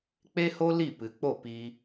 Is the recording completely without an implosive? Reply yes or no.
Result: yes